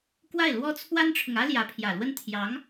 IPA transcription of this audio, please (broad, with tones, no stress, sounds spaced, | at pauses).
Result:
k w a˥˩ ɪ̯ l w ɔ˥ t͡sʰ w a˥ n ʈ͡ʂʰ ʊ˨ ŋ ä˥ l j ä˧˥ pʰ j ä˨˩ l w ə˥˩ n t̪ʰ j ɑ˧˥ ŋ